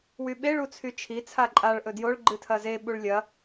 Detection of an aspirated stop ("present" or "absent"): present